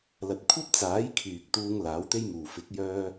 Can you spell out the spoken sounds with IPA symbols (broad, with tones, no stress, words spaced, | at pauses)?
lɐ˨t̚kʷʰɐ˥p̚t͡saː˨˥j kʰyː˨k̚t̪uː˧ŋ laː˨˥wt̪e˥jmuː˨ fɪ˨˥k̚jœː˧